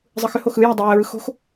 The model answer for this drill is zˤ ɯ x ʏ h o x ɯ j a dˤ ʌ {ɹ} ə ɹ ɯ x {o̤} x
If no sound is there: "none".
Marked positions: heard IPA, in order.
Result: ɹ, o̤

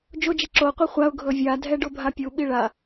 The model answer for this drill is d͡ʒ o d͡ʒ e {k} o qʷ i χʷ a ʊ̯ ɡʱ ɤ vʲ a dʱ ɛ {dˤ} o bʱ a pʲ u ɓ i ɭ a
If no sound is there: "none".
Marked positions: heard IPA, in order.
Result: ǁ, ɖ

